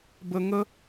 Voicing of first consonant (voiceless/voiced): voiced